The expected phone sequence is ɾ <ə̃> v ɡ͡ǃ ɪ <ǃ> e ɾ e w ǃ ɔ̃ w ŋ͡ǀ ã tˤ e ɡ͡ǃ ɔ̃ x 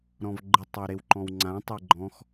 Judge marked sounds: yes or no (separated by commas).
no, no